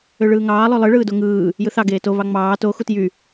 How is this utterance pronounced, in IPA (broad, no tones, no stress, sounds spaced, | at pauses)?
ø ɭ ɯː ŋ ɑː lˠ ø lˠ ɯ ɭ ɯː d o ŋ ɯː | j ɯ θ ɑ ɡ eː t o β ɑ ŋ͡m ɑː t o x u t j y